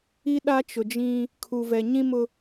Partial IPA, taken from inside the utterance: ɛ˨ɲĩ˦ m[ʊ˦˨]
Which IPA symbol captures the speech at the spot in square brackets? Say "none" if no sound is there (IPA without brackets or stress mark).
ʊ˦